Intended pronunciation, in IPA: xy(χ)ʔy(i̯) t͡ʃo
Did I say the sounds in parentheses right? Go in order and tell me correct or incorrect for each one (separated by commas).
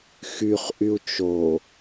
correct, incorrect